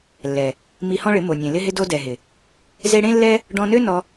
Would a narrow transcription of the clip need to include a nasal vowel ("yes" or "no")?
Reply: yes